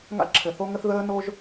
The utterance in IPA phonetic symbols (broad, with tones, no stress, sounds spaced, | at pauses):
ŋ a̰˧ ǁʰ ɘ˩ θ o˧ ŋ ə˧ θ ð əː˧ n o˧ ʒ